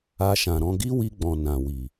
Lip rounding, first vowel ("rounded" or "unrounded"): unrounded